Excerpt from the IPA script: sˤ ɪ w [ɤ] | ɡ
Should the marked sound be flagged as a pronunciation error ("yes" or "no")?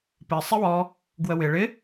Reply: yes